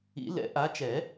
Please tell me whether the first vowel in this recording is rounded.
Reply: no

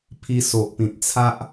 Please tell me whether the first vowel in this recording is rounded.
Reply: no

